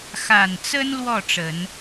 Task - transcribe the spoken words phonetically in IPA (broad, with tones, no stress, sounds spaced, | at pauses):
x a˨˩ n t͡s ə˦ n l w ɔ˥˨ ʈ͡ʂ ə˨˦ n